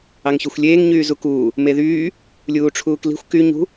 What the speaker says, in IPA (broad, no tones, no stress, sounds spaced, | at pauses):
ɑ ŋ ç ø xʷ lʲ eː ŋ ɲ yː z u k uː | m e ð yː | lʲ uː ʈ͡ʂʰ uː k l i̤ xʷ k y ɲ ṳ